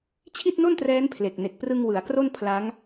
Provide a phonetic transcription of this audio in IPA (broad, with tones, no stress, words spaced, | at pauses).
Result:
t͡ɕʰi˥˩t̚no˥˩ntrɛː˦˥n pʰle˨˩k̚ne˨˩k̚ prɯ˧ŋ wɯ˩˦a̯kro˥˩n pʰla˦˥ŋ